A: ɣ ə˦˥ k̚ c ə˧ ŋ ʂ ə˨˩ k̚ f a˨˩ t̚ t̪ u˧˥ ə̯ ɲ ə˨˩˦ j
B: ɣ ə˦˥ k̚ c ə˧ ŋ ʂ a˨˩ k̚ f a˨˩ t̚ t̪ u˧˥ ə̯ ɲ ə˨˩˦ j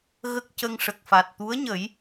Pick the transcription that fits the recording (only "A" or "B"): A